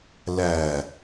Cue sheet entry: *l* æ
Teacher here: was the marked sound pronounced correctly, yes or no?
yes